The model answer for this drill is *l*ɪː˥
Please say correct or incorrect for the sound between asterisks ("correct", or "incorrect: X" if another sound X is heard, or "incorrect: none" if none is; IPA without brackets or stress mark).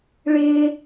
incorrect: ɭ